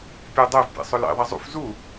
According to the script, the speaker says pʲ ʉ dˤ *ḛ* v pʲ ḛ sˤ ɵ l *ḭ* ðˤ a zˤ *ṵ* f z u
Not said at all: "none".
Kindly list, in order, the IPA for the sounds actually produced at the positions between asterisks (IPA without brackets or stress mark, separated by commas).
e, ḭ, ṵ